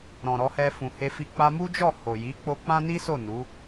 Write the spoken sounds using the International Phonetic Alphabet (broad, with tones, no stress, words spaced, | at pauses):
ɾɔ̃˨ ɾɔ˧hɛ˧fũ˨ he˧fi˧ k͡pa˧mu˦d͡ʒɔ˦˨ ho˨ji˨˦k͡po˧ k͡pã˦ni˦so˦˨ nu˨˦